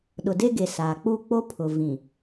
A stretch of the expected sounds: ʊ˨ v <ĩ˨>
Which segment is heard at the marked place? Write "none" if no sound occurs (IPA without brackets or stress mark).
ĩ˨